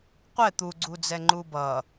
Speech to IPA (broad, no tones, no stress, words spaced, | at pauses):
qʷɛ t̪uɡ͡ǀud͡zɛ ŋ͡ǃubʌ